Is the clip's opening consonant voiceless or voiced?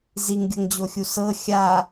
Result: voiced